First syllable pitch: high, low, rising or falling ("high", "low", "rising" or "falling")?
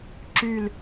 falling